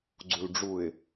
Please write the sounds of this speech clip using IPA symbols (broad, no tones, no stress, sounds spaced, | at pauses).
ɡ͡ǀ u l ɖ͡ʐ u ɪ̯